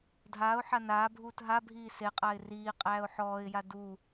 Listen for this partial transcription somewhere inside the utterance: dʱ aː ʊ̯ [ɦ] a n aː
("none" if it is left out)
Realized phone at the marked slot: ħ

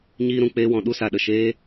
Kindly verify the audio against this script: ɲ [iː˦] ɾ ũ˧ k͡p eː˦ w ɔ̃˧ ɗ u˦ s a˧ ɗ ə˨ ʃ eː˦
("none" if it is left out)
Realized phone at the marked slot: iː˦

